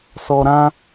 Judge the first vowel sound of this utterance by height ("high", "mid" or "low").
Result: mid